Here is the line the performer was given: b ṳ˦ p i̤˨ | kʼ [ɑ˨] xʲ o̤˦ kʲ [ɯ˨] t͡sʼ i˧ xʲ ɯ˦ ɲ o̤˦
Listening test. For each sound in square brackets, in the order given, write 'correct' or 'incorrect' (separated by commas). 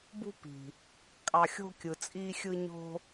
incorrect, correct